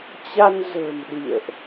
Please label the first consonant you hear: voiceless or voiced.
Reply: voiceless